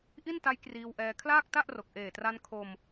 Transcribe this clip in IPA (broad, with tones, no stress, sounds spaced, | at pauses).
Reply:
ʔ i˥˩ n t a˦˥ j k r iː˧ w ʔ ɛː˧ kʰ l aː˥˩ k̚ t a˥˩ ʔ r o˨˩ k̚ ʔ eː˨˩ t r a˧ n kʰ o˧ m